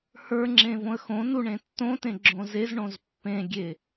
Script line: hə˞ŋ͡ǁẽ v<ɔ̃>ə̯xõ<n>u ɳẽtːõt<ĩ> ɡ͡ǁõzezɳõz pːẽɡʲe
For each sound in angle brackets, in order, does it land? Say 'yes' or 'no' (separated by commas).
no, yes, no